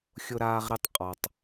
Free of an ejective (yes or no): no